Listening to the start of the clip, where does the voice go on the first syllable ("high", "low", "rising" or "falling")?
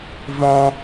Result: high